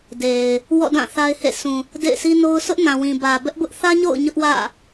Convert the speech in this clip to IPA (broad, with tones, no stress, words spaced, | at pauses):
de˨ɪ̯ | wɔ̰˦˨dã˦˨ θa˦ɪ̯hḛ˦˨ sũ˨ | dḛ˦˨ɪ̯si˦no˦ʊ̯ sʊ˦ʔnã˨wĩ˨ bä˨bɛ˦ʔbʊ˦ʔ θä˦ɲo̰˦˨ʊ̯ ɲʊ˦ʔ wä̰˦˨